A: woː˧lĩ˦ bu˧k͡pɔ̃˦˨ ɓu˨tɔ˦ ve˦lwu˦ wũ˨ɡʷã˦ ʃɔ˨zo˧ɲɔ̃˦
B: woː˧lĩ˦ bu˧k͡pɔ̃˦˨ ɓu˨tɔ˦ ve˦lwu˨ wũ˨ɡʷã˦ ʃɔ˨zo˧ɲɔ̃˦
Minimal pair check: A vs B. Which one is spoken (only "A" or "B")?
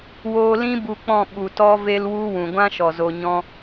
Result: A